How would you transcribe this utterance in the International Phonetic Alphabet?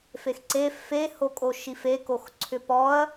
fexǀe fe hokʼoʃifek oxǀʰʏpɔɐ̯

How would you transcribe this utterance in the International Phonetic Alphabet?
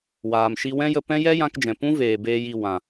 waː˨mʃi˧wɛ̃˦jə˧ pɛ̃˦jɛ˦ jã˧kd͡ʒɛ̃˨pũ˦veː˨ beː˦ji˧ wã˨

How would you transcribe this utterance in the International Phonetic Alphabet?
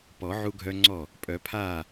pɔ˨˩˦ ʕu˦ɡʱœ˦ŋ͡ǀɔ˥˩ | pʼœ˨˩˦pʰaː˥˩

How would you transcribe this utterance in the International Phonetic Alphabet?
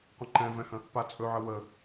qʷə̃ǃɛ̃vɛ̃hə̃ | pat͡sʼɵʕə wə

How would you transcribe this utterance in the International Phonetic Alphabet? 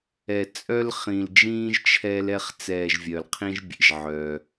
ɛ˨t͡sʼœ˥lχĩ˨ld͡ʒĩː˥ʒ t͡ʃʰɛ˦lɛ˦χ t͡sɛː˨ʒvʲœ˩lqʰĩ˦ʒbʲḛ˩ʒ ʕœ˩

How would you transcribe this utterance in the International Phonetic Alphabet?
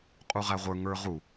qʼuʁæʁʷə˞ ŋə˞ʁu

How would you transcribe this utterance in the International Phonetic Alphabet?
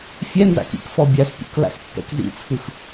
fʲɛnza̰k ḭk fɔbʲaspʲṵk la̰spːɛ̰kzḭt͡sʰɯx

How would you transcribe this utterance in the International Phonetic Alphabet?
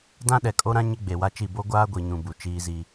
dã˦ɗɛ˨kʼo˦ɾã˦ ɲɪ˦ɡ͡be˨wa˦t͡ʃi˦˨ bo˦ɡʷaː˦ɡʷi˨ɲũ˨ bu˨t͡ʃiː˦zi˦

